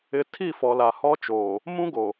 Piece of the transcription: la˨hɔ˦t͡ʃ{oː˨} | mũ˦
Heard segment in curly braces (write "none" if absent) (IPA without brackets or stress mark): oː˨